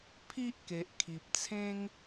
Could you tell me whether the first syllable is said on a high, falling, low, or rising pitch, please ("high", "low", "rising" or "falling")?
high